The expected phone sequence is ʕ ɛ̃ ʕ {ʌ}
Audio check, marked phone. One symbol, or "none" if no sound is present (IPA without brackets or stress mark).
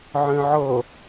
ʌ